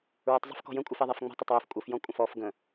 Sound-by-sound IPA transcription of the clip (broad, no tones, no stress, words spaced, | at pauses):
ɹɛtˤzˤə̤fkɔ̤ jə̃kʷʼɨf ɛðˤɛfŋ͡mɔ̤tˤ ətˤwɛf kʷʼɨfjɔ̃ kʷʼə̃fɔf ɡə̃